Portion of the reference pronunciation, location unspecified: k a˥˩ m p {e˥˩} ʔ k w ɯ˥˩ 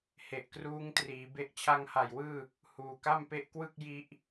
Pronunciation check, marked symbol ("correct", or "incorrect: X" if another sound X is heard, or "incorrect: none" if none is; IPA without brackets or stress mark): incorrect: e˦˥